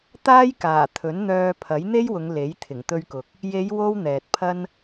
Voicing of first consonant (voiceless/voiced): voiceless